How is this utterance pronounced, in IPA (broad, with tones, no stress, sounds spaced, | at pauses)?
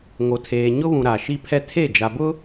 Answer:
ŋ o˨ tʰ eː˨ ɲ ʊ˦ β ũ˨ ɾ a˨ ʃ i˦ pʰ ɛ˦ tʰ e˦˨ d͡ʒ a˨ b ʊ˦